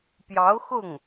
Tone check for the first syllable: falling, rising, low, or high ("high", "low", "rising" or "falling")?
rising